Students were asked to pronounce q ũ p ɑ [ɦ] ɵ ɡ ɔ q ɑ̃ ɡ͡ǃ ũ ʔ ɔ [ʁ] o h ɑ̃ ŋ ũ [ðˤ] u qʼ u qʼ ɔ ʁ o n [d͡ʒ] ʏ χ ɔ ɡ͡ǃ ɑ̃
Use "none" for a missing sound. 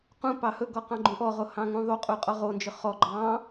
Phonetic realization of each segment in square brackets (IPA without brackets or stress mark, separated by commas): h, ʁ, ðˤ, d͡ʒ